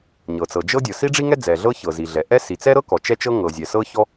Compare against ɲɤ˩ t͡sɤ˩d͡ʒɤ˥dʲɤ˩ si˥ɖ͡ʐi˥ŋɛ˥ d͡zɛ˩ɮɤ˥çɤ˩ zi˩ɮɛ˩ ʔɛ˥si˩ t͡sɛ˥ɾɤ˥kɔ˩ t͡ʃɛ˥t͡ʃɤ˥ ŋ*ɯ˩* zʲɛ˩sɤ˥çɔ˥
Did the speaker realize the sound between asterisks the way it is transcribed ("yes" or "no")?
no